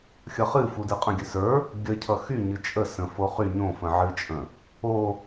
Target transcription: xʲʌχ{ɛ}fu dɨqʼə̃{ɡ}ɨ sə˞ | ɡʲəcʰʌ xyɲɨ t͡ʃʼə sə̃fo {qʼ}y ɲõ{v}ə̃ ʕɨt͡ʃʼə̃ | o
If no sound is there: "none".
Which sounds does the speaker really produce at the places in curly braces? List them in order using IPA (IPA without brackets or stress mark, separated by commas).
ɨ, ɡʲ, χ, f